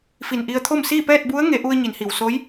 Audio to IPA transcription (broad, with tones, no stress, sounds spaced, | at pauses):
f i˧˩ n ʔ i˧ ə̯ t̪ʰ o˥˨ m s iː˥˨ p ɛː˥˨ t̚ b u˧˥ ə̯ ŋ e˩˧ ʔ u˧ ə̯ ɲ i˩˧ n h i˩ w s o˧˥ j